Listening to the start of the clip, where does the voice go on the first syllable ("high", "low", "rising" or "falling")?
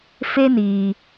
high